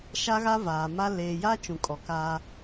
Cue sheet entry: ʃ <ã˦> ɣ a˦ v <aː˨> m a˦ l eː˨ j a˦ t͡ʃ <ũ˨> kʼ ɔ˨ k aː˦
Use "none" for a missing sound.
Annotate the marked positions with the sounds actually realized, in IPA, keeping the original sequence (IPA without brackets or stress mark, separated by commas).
a˦, aː˨, ũ˨